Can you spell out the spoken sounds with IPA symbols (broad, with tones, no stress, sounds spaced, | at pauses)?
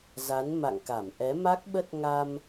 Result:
z a˨˦ n m a̰˧˨ ŋ k a˧˩ m ʔ ɛ˨˦ m a˦˥ k̚ ɓ ə˦˥ t̚ ŋ a˧ m